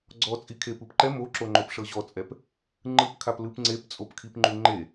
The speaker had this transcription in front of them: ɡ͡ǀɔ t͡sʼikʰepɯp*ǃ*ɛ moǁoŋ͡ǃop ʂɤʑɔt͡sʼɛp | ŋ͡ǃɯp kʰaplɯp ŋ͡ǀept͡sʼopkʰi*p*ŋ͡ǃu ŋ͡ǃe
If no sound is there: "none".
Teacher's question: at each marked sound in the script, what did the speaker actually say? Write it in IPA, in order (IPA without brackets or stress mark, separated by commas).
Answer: ǃ, p